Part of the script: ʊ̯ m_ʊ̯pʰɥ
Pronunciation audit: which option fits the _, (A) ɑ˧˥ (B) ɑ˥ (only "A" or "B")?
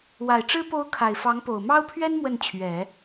B